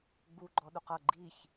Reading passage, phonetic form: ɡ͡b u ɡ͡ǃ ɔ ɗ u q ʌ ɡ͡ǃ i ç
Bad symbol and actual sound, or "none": none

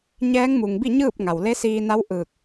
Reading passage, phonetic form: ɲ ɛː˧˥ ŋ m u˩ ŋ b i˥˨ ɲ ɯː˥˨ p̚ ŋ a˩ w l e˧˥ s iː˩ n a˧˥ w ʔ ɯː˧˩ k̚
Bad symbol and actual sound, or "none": iː˩ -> iː˧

